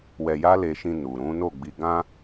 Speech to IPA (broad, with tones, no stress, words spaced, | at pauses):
wɛ˧ja˦ le˧ʃĩ˧nu˨ɾũ˨˦ no˦˨ɡ͡bi˧ ɡã˦